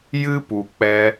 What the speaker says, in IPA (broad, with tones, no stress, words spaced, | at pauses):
jɨ˦ pu˨k͡pɛ˧